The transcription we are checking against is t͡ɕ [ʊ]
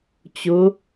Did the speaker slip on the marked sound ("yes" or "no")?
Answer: no